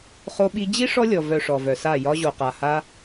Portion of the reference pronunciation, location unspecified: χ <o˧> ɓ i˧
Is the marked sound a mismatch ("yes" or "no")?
no